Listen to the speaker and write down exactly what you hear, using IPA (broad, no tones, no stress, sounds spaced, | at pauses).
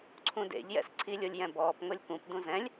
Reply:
ǀʰ ũ d ḛ ʎ j ɛ̰ s ǀʰ i lʲ o lʲ j ɛ̃ b ɔː p ŋ o lʲ k ũ p d ũ z ɛ̃ lʲ